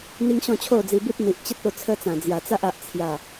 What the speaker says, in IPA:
n̪ i˦ ŋ ɕ ɔ̃˥˧ t͡ɕʰ o˥˧ d͡z i˧ b i˦ t̚ n̪ i˨ ʔ t͡ɕ ə˦ t̚ o˧ t͡sʰ ə˦ t͡s ã˨˩ d͡z j a˨˩ t͡s a˦ ʔ a˨ ʔ t͡sʰ j a˨˩

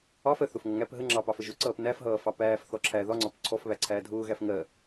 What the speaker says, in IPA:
ɑ f ɜ θ ʊ f ŋ ʌ ŋ æ p ɦ ə ŋ͡ǁ ɑ p ɑ f ə ʒ ʊ ǀ ʌː p n æ f ɦ ʌː f ɑ p æː f θ ɔ ǁʰ æ ð ɒ ŋ͡ǀ ɒ p ǀʰ ɔ f β æ ǀʰ æː dʱ ʊː ɣ æ f ŋ ɜ

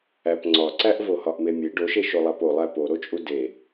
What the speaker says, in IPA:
æ p ŋ͡ǀ ɒ ǀ æ ʔ v o h ɒ ʔ m e mʲ e ɖ o ʃ e ʃ o lˠ æ p o lˠ æ p o ɾ o t͡ʃʼ u d e

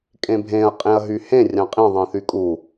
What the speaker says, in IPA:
kʼ ẽ bʱ ẽ ɐ̯ qʼ ẽ ɐ̯ ɦ y h ẽ rʲ ɑ̃ qʼ ĩ ðˤ ĩ θ y kʼ u

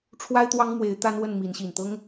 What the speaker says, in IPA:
ʈ͡ʂʰ w a˦ ɪ̯ t̪ w ɑ˦ ŋ m w e˨˦ ɪ̯ t̪ a˦ n w ə˥˨ n m i˨˦ n ɕ i˨˩ n t̪ ɤ˦ ŋ

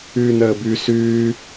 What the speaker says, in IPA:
ʉː n əː b ʉ s ʉː

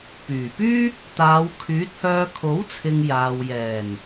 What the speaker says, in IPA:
p yː˨˩ p yː˥ | t̪ aː˨˧ w kʰ yː˨˥ t̚ h œː˧ kʰ o˨˥ w t͡sʰ ɪ˨ ŋ j aː˨ w j ɛː˨˩ n

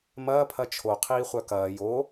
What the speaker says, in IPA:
m ɐː pʰ ɐ t͡ʃʰ o qʰ iː χʷ œ k ɐː j o

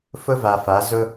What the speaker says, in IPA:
f ʊ˦ v a˨ f a˨˦ z ʊ˦

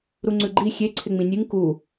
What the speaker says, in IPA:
ɾ u ŋ͡ǀ ʉ ɡ͡ǃ i xʲ e ǀʰ e ŋ͡m ĩ nʲ ɨ ŋ k u

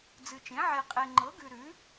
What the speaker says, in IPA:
d͡z ɨ˨ t͡ʃ ẽ˩˥ ʕ e˨ qʼ e˨ ŋ͡ǃ ɤ˩˥ ɡ ʉ˨ ɾ ʉ˩˥

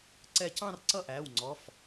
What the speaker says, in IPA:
ǀ ɛ˧˩ c ɑ̃˥˧ r ǀ ʌ˥˩ ʔ æː˩˧˩ w ŋ͡ǀ ɔ˩˧˩ f

